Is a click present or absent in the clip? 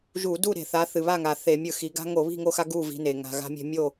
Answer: absent